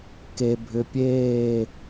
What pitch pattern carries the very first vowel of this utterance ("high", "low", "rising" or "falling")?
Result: low